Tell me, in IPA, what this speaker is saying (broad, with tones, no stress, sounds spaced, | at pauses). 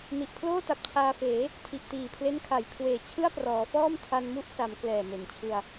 n i˨˩ ʔ pʰ l oː˥˩ t a˨˩ p̚ t͡ɕʰ aː˧ f eː˩˦ | tʰ i˨˩ ʔ t iː˨˩ pʰ l e˦˥ n kʰ a˨˩ j kʰ w eː˨˩ t͡ɕʰ ɯ˥˩ a̯ p r ɔː˩˦ f ɔː˥˩ m tʰ a˧ n m u˥˩ ʔ s a˩˦ m k l ɛː˨˩ m e˩˦ n t͡ɕʰ ɯ˧ a̯